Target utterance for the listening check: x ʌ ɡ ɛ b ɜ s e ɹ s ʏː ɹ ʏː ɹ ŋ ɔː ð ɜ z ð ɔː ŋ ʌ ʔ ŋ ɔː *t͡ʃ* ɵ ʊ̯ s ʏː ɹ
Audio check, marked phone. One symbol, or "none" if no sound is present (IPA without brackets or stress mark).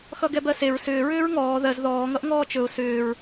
t͡ʃ